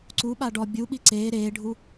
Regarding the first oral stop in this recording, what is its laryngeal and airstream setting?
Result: click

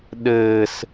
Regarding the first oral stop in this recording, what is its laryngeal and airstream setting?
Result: implosive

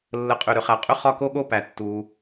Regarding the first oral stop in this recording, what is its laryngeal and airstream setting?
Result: ejective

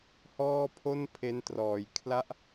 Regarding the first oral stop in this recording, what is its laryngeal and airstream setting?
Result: aspirated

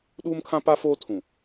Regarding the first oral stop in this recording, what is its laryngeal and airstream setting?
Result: implosive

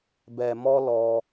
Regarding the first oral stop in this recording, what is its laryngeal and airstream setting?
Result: plain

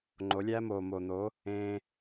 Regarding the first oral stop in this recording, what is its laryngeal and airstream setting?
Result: click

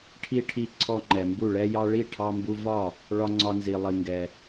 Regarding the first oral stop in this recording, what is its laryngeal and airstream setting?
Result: aspirated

